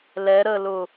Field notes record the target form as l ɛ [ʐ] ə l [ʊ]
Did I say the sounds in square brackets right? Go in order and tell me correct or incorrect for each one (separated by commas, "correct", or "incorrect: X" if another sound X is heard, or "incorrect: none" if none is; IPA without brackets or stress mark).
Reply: incorrect: ɾ, correct